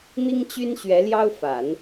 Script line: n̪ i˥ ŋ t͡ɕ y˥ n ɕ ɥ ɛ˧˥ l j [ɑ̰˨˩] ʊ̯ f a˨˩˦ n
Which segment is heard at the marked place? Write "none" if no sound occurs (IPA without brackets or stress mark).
ɑ˥